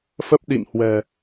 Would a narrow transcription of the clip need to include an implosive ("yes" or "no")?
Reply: yes